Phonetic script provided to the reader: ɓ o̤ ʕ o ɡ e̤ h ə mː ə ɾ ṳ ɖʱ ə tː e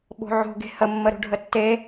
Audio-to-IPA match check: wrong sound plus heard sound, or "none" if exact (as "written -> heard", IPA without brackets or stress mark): o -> o̤